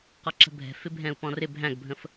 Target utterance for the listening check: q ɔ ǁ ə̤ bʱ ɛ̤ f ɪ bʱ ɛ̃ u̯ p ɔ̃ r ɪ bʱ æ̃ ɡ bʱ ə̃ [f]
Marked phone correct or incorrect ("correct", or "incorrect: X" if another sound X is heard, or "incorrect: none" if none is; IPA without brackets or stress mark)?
correct